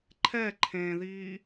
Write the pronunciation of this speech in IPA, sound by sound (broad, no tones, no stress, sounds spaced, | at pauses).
ǃʰ ɛ ǃʰ ẽ ð iː